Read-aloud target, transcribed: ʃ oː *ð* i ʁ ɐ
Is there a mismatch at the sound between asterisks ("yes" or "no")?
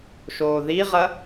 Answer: no